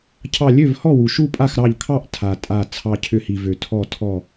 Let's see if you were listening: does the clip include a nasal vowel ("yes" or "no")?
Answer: no